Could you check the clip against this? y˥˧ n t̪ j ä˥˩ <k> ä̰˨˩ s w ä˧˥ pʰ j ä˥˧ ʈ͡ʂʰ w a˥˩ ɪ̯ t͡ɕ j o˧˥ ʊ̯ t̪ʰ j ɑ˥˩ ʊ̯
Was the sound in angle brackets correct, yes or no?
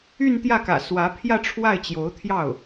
yes